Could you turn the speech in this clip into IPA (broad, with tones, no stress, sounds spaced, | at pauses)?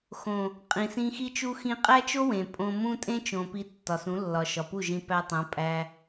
x õ˨ | qʼ ĩ˨ s ĩ˧ x i˦ t͡ʃ u˧ x ĩ˧ qʼ æ˦ t͡ʃ o˦ w ẽ˨ pʼ õ˧ m ũ˦ tʼ ẽ˦ t͡ʃ õ˨ p i˧ tː ɒ˨ s ũ˨˦ lː ɒ˨ ʃ ɒ˨ p u˦˨ ʒ ĩ˧ p æ˧ tˤ õ˨˦ pʼ æ˧